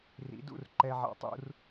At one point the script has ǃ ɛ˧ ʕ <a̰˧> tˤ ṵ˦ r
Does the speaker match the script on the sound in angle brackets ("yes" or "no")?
yes